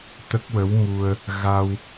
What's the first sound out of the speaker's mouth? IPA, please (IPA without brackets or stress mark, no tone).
t̪